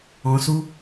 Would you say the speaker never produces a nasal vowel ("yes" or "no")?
no